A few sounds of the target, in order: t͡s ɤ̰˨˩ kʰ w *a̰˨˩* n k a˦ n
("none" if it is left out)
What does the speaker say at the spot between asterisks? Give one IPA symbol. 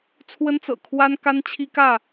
a˦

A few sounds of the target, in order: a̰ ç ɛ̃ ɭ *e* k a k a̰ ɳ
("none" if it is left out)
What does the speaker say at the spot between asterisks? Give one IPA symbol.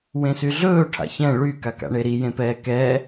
y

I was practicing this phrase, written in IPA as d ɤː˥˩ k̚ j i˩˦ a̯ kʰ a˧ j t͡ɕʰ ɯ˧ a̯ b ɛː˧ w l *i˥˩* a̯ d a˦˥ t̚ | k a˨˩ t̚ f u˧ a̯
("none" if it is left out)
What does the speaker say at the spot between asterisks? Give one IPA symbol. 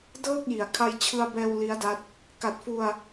i˦˥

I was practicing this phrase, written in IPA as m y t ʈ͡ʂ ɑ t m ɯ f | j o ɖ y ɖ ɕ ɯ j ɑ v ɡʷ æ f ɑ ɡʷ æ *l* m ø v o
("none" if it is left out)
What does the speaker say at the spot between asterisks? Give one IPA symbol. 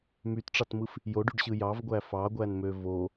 n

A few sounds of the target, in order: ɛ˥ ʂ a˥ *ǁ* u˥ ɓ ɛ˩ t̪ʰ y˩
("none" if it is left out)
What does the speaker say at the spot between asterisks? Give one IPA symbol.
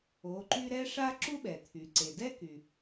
ǁ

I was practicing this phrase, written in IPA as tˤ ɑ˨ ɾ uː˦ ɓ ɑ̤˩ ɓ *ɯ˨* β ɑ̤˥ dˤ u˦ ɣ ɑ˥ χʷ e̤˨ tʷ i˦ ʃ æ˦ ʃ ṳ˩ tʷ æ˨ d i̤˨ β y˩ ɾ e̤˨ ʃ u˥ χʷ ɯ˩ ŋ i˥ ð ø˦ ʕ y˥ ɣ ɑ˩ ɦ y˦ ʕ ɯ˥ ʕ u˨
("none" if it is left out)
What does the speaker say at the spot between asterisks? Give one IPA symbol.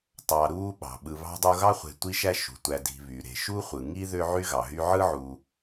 ɯ˨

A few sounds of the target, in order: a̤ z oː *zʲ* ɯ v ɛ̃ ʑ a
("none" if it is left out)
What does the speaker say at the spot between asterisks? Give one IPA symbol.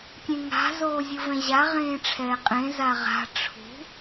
zʲ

